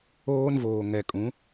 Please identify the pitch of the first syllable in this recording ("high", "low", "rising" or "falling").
high